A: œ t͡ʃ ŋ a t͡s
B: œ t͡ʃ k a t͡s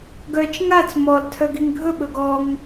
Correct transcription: A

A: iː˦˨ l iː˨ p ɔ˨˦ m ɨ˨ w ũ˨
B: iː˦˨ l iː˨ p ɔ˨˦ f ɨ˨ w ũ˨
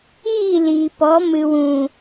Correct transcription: A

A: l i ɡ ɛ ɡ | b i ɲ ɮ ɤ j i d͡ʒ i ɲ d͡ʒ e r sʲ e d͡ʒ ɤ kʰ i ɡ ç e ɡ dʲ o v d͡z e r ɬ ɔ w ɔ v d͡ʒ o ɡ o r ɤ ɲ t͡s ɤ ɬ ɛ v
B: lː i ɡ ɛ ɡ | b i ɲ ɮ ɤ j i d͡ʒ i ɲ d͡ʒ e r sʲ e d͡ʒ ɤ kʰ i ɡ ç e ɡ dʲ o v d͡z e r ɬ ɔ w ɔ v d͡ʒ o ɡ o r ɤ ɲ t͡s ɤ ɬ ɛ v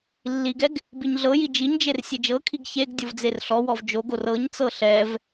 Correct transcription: B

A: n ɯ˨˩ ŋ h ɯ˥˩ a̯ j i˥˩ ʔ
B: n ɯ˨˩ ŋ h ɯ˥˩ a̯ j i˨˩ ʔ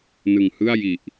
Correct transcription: B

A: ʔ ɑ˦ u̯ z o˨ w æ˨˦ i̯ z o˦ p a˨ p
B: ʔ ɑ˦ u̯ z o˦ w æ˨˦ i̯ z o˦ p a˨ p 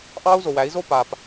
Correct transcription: A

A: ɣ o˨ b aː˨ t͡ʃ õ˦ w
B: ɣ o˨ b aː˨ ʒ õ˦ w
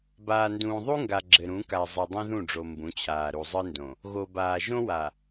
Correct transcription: B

